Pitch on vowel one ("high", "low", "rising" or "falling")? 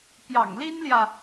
low